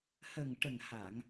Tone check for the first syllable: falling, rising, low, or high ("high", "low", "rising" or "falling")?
low